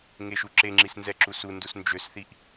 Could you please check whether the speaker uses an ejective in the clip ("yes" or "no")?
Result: no